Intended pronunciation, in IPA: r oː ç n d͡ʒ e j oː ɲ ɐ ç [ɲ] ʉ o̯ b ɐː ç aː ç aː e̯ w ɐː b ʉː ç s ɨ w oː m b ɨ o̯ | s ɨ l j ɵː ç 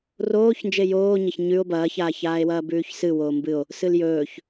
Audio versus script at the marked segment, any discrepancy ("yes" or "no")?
no